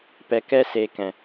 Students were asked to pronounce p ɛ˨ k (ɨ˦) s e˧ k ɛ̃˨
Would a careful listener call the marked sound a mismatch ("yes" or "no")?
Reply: yes